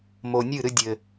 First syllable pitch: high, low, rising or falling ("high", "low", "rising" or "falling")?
low